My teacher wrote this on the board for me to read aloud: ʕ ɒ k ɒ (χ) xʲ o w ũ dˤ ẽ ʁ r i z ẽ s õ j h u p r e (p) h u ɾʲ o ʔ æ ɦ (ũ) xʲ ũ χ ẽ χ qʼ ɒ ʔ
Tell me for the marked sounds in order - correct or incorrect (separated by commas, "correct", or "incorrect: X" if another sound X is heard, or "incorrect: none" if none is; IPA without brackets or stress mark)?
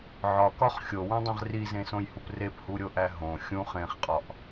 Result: correct, correct, incorrect: õ